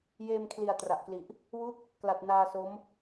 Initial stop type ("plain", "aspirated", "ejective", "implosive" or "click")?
aspirated